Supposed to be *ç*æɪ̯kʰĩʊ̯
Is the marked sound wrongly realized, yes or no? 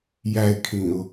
yes